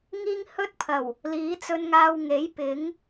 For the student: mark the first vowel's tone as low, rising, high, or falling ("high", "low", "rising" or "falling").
high